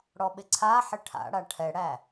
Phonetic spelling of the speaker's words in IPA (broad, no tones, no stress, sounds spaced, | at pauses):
ɽ ɔ ɓ ɪ ǀʰ a ħ ɪ ʈʰ a̰ ɽ a ʈʰ ɛ ɽ æ